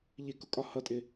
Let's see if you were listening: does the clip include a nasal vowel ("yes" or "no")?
no